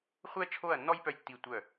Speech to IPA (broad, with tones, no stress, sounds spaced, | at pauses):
χʷ ɛ˦ t͡ʃʰ o˦˨ ɐ̯ nː ɔ˦ j p œ˧ j tː i˦˨ tʷ œ˦˨